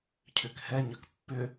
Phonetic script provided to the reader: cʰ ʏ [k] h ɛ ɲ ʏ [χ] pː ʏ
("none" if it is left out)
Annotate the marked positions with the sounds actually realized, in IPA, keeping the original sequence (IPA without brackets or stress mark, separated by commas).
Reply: k, k